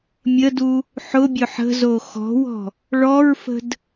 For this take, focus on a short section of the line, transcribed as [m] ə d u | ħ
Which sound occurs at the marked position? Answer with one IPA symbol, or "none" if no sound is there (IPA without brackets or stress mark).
mʲ